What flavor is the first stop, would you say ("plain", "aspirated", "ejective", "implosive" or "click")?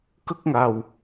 plain